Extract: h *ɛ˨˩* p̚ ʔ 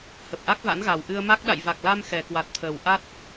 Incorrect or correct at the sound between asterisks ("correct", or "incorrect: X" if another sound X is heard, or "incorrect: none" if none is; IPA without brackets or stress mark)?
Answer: incorrect: ə˨˩